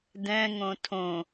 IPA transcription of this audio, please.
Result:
d ɛ̃ ŋ õ tʰ õ

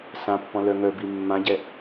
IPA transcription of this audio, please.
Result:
s ã pː ɔ̃ l œ ŋ œ b i mː ã ɟ ɛ

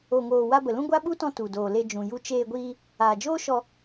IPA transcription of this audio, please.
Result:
o˧ ŋ oː˧ w a˧ b ə˨ l ũ˦ ɡʷ a˦ ɓ u˦ t ɔ̃˧ t u˨ d oː˨ l e˧ d͡ʒ ũ˨ j u˧ t͡ʃ eː˧ ɡʷ iː˧ | aː˨ d͡ʒ oː˦ ʃ ɔ˧

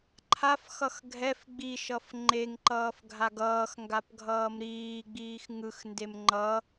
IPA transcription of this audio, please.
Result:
ǃʰ a f x ʌ x ɡʱ ɛ f ɡ͡b i ʃ ʌ f ŋ͡ǃ e ŋ ǃ ʌː f ɡʱ a ɡ ʌː x ŋ ɡ a p ɡʱ ʌː m ɾ iː ɡ͡b iː x ŋ ɯ x n d e m ŋ͡ǃ ʌ

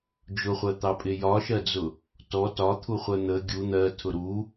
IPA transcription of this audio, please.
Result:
d͡ʒ ʊ χʷ ɜ t̪ ɑ pʼ ɪ j ɒ ʃ ɜ d͡z ʊ | t ɔ t ɒ t̪ʰ u χʷ ɜ n̪ ə ɡʲ u n̪ ɜ tʰ ʊ ɾ u

